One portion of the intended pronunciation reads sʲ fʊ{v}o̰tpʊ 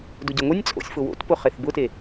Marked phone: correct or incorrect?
incorrect